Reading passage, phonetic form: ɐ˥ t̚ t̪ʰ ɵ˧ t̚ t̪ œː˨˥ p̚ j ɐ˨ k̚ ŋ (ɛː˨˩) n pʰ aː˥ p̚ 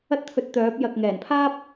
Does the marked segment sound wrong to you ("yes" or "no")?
no